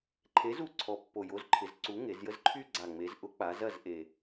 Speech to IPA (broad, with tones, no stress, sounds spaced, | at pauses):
ǃʰ e˨˥ z u˨˥ ǀʰ ɔ˨˩ pː o˨˩ j o˨˥ z ǃʰ ɪ˩˧ z ǀ u˨˥ ŋ e˩˧ z j ə˦ z ǃʰ y˦ ɡ͡ǀ a˨˩ ŋ͡m e˩˧ z ʔ ʊ˨˥ k͡p a˩˧ z ɐ˦˨ z ʔ e˨˩